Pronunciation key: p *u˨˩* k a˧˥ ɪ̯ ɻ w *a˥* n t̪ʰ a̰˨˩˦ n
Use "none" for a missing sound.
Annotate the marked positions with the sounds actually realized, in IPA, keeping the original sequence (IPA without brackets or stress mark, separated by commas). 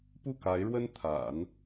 u˥˩, ə˥